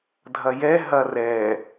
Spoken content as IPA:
dʱ ɐ j ɛ ɦ ɐ r ɛ

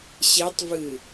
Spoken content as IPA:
ɕ e tˤ v ɨ

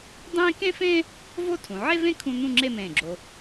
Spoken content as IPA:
dˤ ẽː˥ k ẽ˥ f ẽː˥ | v o˥˧ tʰ ũ˩˧ ʕ e˥ v ẽ˥ kʰ ũ˥ n̪ ũ˥˧ ŋ͡ǁ e˥˧ m ẽː˧˩ ɡ͡ǁ o˧

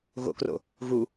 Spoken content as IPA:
ɣ o̰ k r o̰ | ɣ u

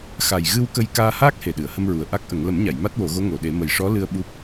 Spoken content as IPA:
x a˨˩ j ɣ ɨ˧ w k ə˧ j k aː˧ h aː˦˥ k̚ h e˨˩ ɗ ɨ˨˩˨ ə̯ h ə˧ m ɹ u˨˩ ə̯ ʔ a˦˥ k̚ ʔ ə˨˩˦ ŋ l ə˨˩˦ m ɲ a˨˩˨ j m a˦˥ t̚ w o˨˩˦ ɣ o˧˥ ŋ o˨˩˨ ɗ e˨˩˦ m ə˨˩ j ʂ ɔ˧˥ l ɨ˧ ə̯ ɓ u˦˥ p̚

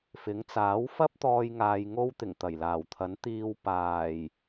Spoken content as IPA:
f ɪ˨˥ ŋ t͡s aː˨˥ w f ɐ˥ p̚ t̪ ɔː˧ j ŋ aː˧ j ŋ o˥ w t̪ ɪ˨˩ ŋ t̪ ɐ˨˩ j l aː˨˩ w t̪ʰ ɐ˨˥ n t̪ iː˧ w p aː˨˩ j

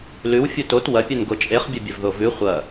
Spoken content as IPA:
l ʉ w fʲ u t o t w ɐ pʲ ɵ n ɡ o t͡ʃʼ e χ bʲ ɐ bʲ ɐ v ð o v ʉ χʷ ɐ

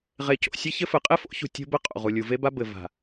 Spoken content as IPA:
ʁ e˨ c o̰˨ sʲ ɘ˦ ç ɘ˦ f ɘ˨ qʼ e˦ f o̰˦ ç ṳ˨ tʲ o̤˦ b ɘ˦ qʼ o̰˨ ʁ u˨ lʲ u˨ v e˦ b a˦ b ɘ˨ v a̤˨

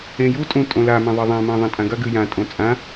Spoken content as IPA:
ẽ j u tʼ ũ tʼ õ l a m ɐ̃ ðˤ e ðˤ ã m ɐ̃ ðˤ ɐ̃ tʼ ã ɡ ɐ ɡ ɨ j ã tʼ õ t͡sʼ ã

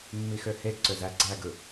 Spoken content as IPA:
mː i x ø h e ɡ ǀ ø z æ ɡ͡ǀ æ ɡ ɯ

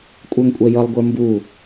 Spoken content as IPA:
kʷʼ ə˞ ŋ kʷʼ ɛ j ʌ lˠ ɡʷ ə˞ m b u

